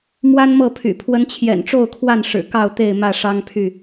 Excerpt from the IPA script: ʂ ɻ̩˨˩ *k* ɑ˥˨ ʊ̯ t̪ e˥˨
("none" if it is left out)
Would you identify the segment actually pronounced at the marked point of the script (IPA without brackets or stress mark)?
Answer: k